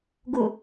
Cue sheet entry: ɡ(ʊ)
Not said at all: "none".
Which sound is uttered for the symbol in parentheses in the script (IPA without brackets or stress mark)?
ʊ